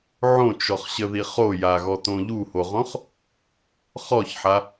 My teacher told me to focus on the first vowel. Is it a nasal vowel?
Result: yes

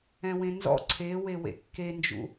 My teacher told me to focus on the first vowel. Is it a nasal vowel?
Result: yes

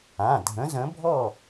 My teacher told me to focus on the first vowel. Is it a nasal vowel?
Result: yes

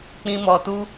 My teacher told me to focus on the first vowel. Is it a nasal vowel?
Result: yes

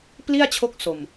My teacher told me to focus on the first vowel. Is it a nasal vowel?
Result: no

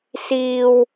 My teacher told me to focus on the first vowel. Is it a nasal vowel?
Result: no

